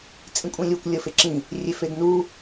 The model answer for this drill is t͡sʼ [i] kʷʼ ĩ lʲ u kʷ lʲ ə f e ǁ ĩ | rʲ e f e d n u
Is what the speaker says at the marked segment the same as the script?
no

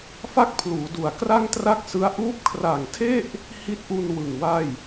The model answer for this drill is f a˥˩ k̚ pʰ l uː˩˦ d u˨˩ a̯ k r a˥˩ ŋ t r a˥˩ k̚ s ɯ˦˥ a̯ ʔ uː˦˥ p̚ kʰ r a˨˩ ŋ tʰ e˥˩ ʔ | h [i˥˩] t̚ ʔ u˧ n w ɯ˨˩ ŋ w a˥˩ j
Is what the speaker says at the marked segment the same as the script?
no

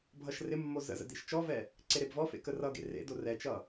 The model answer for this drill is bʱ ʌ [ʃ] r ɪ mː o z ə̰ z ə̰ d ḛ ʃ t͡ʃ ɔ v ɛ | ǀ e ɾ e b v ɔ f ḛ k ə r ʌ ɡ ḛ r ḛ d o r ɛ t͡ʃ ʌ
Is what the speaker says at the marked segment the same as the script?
yes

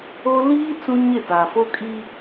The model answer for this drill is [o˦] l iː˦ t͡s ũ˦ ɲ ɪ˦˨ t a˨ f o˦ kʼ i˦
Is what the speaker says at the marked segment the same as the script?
yes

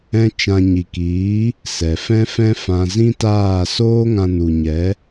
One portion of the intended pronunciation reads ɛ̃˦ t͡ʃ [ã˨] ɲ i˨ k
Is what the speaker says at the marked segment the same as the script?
no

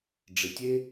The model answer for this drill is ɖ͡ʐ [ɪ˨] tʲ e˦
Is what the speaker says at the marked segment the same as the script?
yes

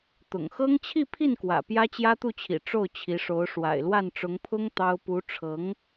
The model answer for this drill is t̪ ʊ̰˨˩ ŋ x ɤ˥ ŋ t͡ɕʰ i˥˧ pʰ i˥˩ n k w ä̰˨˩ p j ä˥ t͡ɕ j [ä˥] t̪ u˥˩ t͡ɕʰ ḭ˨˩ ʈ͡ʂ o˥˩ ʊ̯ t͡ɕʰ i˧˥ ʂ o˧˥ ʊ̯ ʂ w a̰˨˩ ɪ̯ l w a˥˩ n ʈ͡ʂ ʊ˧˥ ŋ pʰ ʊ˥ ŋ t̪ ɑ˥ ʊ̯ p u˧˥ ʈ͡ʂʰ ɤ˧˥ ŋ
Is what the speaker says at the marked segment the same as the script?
yes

